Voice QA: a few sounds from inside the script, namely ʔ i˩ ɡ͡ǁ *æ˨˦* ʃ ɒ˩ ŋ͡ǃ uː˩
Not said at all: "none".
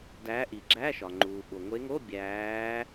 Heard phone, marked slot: æ˧˥˧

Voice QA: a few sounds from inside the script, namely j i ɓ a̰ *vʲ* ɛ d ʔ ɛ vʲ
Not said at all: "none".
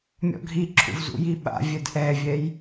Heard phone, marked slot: vʲ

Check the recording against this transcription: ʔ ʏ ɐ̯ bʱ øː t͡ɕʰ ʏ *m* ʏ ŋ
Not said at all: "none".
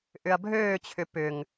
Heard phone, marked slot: p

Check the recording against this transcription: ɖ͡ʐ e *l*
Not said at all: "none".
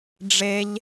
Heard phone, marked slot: ʎ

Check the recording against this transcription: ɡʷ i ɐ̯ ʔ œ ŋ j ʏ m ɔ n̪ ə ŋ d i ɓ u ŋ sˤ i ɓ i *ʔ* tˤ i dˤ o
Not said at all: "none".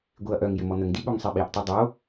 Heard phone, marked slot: ʔ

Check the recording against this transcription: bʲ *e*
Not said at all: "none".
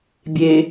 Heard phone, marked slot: e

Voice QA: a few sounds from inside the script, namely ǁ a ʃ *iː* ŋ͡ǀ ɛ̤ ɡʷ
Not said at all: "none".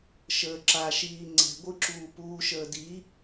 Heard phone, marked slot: iː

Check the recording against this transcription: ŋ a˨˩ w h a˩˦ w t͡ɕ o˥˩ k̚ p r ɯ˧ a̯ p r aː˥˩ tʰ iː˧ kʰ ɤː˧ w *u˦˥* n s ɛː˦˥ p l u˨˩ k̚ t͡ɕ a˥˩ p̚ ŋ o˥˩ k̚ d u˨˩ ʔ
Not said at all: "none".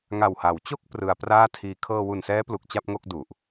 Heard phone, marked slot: u˨˩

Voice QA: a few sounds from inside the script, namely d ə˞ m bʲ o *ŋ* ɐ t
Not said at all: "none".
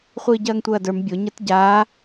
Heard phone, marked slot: ɲ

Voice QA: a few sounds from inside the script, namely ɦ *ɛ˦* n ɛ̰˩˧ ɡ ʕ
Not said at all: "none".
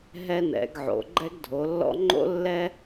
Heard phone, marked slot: ɛ˦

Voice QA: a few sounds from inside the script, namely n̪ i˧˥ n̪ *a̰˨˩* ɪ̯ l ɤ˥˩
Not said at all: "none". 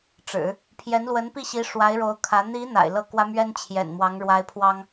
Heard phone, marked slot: a̰˨˩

